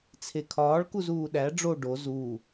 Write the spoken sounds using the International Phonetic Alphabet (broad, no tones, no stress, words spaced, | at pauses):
t͡sʰekʰɒːɭkuz uːɗæ ɖ͡ʐo ɖo zuː